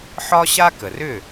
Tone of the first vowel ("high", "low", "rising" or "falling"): high